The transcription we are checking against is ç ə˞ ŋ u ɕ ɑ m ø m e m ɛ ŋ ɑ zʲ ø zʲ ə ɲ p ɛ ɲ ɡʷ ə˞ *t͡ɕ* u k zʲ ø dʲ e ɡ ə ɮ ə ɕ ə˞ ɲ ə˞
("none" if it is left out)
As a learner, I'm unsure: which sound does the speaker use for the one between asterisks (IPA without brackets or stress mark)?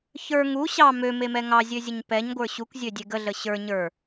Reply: ɕ